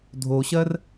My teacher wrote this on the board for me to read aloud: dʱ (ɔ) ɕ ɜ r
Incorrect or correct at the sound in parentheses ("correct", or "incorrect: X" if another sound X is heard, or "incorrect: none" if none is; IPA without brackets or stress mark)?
incorrect: o